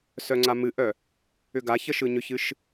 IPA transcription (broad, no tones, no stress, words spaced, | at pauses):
sœŋ͡ǀamɨʔœ | ʏɡaçə ʃɯɲʏçɨʃ